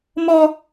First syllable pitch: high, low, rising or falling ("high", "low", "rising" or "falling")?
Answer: high